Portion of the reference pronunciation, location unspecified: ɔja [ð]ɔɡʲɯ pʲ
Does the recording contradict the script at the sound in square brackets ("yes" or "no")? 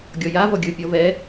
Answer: yes